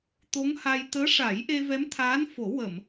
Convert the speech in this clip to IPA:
t̪ o˧˥ ŋ h a˧ j t̪ əː˧˥ ʂ a˨˩˦ j ʔ e˧ v ɛ˧˥ m t̪ʰ aː˧˥ n f o˨˩˦ w ə˨˩˨ m

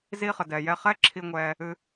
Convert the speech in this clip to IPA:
z i˧ χ ə˨ d ɛ˨ j ɛ˧ χ ɛ˦ ǁʰ i˧ ŋʷ ɛː˧ | ɨ˧

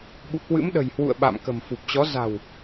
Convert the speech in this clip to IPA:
ɓ ṵ˧˨ k w ɨ̰˧˥ m ɗ ə̤˨˩ j h w ṵ˧˨ ə̯ ɓ a̰˧˨ m k ə̤˨˩ m f u˨˩ p̚ t͡ɕ ɔ˨˦ z a̤˨˩ w

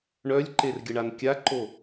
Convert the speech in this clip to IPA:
ɳ œ lʲ ǃ e r ɡʲ ə ɳ a n kʲ a ǃ o

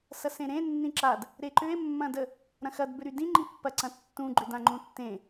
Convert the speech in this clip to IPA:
s ɐ s ẽ ɾ ẽ nː ĩ ǁ a d | ɾ e ǃ ʏ e̯ mː ɐ̃ d ə | ɾ ɐ̃ x ɐ d b ʏ ɾ y d ĩ ŋ͡ǃ i pː ɐ ǀ ɐ̃ tː ũ ɡ͡ǃ ʏ d ã ŋ͡ǃ ũ tː ẽ

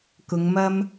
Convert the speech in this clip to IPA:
k ʊ˨˧ ŋ m ɐ˥ m

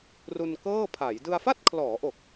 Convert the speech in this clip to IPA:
r u˧ n k ɤː˥˩ pʰ a˩˦ j d ɯ˧ a̯ f a˥˩ t̚ kʰ l ɔː˩˦ ʔ o˨˩ k̚

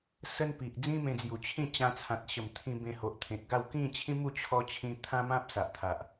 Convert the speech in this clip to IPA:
s ə˦ n p i˨ ʔ d͡z ĩ˦ m ẽ˧ d͡z j u˨˩ t͡ɕʰ ĩ˥˧ t͡ɕ ã˧ t͡sʰ ã˨ t̚ ɕ ə˨˩ m t̪ʰ ĩ˧ b ẽ˧ h o˨ ʔ t̪ʰ ẽ˨ t̚ ɡ a˥˧ w k ĩ˥˧ t͡ɕʰ ĩ˦ m u˥˧ t͡ɕʰ ɔ˦ t͡ɕʰ ĩ˦ t̪ʰ ã˦ m ã˦ p̚ s a˨ ʔ t̪ʰ a˨ ʔ

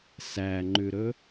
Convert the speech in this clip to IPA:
s æ ŋ͡ǃ ʉ ɾ ɵ

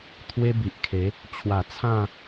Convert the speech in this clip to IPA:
t̪ʰ w e˦ b i˨ ʔ kʰ e˨˦ | t͡ɕʰ w a˨˩ t͡sʰ ã˥˧

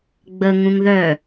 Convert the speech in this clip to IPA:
ɡ͡b ə ŋ ũ ŋ ð œ

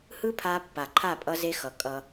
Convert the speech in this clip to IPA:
h ɯ˦ pʰ a˦ pː a˨ ǃʰ a˦˨ pʼ ʌ˦ z e˦ x ʌ˨˦ kʼ ʌ˦

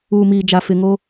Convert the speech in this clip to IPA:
uː˨ m iː˨ d͡ʒ a˨ f ɪ˨ ŋ o˦

